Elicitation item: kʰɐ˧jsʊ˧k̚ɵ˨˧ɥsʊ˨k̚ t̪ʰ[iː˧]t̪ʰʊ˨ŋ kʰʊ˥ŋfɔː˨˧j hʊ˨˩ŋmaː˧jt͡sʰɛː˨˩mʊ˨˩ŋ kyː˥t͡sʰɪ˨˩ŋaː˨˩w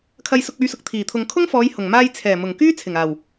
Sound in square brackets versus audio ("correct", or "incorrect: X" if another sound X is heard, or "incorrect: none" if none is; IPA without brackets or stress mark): incorrect: iː˨˩